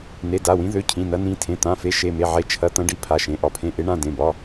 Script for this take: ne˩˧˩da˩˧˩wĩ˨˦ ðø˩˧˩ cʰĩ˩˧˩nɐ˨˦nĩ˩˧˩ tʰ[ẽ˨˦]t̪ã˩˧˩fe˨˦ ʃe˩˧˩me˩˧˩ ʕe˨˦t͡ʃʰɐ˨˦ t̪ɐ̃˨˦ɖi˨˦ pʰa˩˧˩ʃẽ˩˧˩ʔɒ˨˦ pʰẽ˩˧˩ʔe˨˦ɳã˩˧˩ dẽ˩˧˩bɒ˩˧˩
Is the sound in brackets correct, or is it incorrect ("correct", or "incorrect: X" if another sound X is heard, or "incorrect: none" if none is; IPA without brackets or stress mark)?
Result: incorrect: ẽ˩˧˩